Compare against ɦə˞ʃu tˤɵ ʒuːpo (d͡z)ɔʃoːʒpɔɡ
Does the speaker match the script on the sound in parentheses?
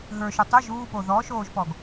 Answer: no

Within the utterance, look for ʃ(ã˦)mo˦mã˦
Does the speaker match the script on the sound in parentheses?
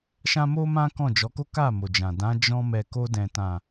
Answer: yes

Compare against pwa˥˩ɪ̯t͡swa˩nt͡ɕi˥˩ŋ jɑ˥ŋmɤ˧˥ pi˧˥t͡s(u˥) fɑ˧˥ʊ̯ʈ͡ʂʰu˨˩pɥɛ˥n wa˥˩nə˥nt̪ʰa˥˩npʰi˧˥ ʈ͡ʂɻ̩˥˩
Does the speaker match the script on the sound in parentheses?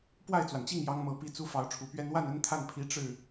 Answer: yes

